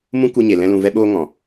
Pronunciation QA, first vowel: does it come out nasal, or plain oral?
nasal